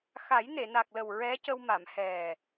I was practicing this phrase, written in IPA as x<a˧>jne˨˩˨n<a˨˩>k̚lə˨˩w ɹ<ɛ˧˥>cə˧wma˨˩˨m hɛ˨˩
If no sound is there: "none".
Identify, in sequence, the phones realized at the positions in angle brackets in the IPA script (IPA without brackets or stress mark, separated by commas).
a˨˩˦, a˨˩, ɛ˧˥